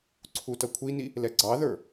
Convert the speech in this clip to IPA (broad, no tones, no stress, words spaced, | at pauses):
ǀʰutʌkʷʰini | lɛɡ͡ǀɑðə˞